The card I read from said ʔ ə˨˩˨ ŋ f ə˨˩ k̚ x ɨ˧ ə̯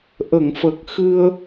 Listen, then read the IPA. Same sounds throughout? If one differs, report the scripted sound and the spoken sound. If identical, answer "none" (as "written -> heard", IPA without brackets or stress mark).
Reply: none